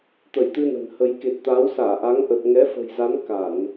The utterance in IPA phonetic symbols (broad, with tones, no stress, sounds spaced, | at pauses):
t̪ ə˧˩ j t̪ ɨ˧ n ə̤˨˩ n h ə˨˦ j k e˨˩ t̚ t̪ aː˨˦ w s aː˧˩ ʔ aː˨˦ ŋ ʔ ə˨˩ t̚ ŋ ɛ˨˦ f ə̤˨˩ j z a˨˦ n k a˧˩˨ n